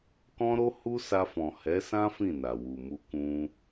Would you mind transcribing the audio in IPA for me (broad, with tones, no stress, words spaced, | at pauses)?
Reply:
kɔ̃˦ɾo˦ hu˦ sa˧fɔ̃˨ hɛ˨˦sã˦ fĩ˦˨na˨ wu˨ mu˧kũ˧